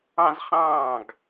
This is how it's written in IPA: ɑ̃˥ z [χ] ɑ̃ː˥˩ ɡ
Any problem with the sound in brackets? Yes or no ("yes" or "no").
no